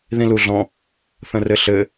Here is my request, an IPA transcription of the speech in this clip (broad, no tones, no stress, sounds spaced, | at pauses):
ð ĩ l u ɮ ɔ̃ | θ ə̃ r ɘ ɬ ɘ